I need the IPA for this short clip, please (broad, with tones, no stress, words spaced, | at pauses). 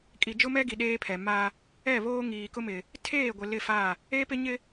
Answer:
kʼi˨d͡ʒʊ˦mɛ˦ɡi˨ ɗeː˦pʰɛ˨ ma˦ | ɛ˦˨βoː˦ ŋiː˨kʊ˦mɪ˨ | tʰeː˦˨ɡʷɪ˨ lɪ˦˨fa˦˨ | e˦pɪ˦ ɲɪ˦